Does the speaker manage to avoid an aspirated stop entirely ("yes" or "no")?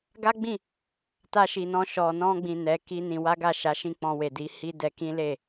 yes